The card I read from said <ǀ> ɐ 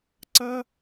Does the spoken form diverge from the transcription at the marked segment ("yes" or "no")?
no